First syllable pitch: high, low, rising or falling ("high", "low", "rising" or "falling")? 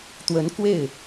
rising